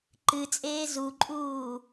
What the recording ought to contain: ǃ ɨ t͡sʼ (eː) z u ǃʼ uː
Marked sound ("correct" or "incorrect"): correct